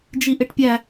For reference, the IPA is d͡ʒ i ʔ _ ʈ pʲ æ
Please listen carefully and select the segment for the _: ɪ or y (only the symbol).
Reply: ɪ